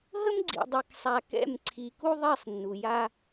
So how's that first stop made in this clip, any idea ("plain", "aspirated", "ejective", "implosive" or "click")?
click